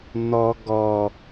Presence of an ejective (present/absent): absent